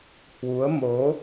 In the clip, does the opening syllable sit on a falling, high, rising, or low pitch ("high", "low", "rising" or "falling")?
rising